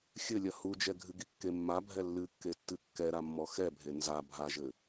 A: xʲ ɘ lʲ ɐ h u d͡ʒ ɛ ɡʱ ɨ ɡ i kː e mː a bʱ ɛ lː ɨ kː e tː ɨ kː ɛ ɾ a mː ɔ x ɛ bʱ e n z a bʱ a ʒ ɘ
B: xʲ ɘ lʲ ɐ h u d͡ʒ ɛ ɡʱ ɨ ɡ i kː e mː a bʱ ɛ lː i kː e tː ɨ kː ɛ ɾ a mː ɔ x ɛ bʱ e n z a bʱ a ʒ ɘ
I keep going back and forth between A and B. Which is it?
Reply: A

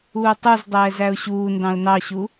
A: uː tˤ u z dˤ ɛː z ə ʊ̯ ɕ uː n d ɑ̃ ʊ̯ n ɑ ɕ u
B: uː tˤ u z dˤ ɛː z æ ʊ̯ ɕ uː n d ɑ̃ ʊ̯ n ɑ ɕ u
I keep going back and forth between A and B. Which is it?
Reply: B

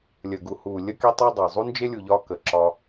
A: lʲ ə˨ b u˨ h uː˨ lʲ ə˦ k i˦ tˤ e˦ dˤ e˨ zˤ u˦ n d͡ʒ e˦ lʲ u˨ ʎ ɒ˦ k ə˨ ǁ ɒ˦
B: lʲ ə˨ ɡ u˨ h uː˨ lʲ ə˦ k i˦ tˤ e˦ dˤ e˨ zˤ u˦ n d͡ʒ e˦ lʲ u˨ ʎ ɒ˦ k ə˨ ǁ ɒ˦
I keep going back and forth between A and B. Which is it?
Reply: B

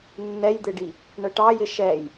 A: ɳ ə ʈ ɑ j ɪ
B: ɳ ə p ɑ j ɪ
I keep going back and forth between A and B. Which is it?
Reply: A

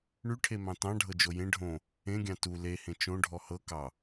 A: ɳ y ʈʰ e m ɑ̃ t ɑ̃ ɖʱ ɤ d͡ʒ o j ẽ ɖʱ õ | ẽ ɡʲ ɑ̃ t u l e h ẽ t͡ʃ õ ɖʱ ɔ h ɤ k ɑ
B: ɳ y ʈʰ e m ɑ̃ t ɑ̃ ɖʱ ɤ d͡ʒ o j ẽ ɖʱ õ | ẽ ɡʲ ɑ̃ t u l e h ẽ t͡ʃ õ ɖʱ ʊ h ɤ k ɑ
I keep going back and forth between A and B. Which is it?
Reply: A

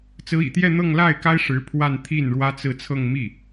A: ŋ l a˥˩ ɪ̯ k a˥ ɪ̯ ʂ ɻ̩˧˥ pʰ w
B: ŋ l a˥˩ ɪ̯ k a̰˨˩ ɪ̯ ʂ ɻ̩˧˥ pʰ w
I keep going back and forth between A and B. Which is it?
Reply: A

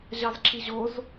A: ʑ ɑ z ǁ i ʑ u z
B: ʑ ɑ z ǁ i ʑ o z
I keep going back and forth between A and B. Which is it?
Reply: B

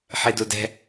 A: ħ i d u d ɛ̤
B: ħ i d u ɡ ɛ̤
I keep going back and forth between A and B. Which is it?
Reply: A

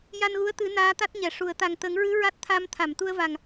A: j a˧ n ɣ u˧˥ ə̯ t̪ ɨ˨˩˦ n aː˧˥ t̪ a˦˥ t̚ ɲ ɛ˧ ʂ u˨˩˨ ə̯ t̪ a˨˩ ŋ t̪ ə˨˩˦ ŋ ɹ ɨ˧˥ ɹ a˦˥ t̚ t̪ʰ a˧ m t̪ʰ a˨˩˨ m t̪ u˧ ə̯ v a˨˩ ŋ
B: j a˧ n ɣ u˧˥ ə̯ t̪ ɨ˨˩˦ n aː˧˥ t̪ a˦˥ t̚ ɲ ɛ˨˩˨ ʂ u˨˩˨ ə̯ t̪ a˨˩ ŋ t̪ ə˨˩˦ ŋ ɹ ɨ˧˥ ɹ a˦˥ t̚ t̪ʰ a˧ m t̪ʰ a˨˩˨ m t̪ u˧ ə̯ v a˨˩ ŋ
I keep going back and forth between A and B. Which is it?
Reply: B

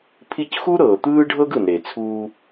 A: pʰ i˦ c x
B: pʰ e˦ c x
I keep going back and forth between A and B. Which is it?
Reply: A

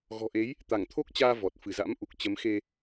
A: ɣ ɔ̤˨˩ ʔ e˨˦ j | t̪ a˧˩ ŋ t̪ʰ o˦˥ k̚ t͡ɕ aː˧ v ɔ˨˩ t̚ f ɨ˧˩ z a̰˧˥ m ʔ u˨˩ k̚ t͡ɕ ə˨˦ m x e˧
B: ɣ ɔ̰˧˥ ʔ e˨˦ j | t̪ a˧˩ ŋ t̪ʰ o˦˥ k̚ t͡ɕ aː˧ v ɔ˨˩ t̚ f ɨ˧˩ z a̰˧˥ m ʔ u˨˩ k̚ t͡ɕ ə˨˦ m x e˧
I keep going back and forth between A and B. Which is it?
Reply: A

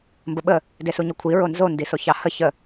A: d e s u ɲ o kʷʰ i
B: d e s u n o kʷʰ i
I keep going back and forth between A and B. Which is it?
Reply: A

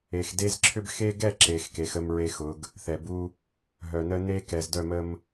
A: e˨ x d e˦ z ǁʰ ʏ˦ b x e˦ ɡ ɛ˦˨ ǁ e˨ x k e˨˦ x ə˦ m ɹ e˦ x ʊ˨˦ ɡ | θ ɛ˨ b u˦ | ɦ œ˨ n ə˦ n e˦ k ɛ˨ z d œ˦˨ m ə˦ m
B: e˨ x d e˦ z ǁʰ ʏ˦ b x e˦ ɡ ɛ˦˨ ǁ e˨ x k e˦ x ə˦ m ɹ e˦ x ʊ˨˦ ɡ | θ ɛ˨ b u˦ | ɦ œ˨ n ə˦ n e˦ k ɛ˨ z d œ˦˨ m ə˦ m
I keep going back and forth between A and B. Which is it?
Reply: A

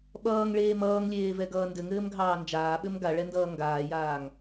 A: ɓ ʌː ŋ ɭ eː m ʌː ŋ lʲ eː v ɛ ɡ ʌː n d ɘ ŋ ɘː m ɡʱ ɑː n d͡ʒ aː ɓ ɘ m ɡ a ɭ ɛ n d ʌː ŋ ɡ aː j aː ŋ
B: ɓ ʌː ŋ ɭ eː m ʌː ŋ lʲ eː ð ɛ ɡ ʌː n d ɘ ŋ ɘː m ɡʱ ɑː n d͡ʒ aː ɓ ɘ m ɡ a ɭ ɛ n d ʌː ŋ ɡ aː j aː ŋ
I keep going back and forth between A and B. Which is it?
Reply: A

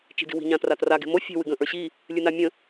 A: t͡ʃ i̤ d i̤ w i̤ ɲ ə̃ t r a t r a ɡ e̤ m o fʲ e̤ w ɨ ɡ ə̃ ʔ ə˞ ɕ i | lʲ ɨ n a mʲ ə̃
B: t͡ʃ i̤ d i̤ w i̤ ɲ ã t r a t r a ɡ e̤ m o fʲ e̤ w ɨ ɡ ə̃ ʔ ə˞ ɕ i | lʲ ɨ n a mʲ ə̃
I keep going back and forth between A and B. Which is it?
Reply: B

